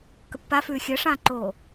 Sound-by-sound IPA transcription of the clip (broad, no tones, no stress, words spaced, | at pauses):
kəpːa fʉːxʲəːʂãːǃoː